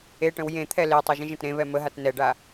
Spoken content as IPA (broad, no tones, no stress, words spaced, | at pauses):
eʈə̃w jẽt̪ʰɛ letˤuʒ ə̃ʒə̃tɾẽβɛ məɦat nɛɖa